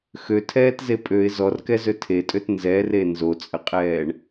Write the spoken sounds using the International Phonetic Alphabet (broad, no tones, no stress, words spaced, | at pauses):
xøtʰɛːtze pʼøɪ̯ zɔrkɛzø tʰetʼøt nzɛre nzot͡sʼəqʼɛːɳ